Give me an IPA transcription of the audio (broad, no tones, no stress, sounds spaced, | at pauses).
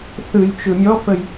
θ ɯ j t͡ʃ ɯ mʲ ɔ f ə j